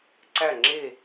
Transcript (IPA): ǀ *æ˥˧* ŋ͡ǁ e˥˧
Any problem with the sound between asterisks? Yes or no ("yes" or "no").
no